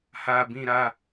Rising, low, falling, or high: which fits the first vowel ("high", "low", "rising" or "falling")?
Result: low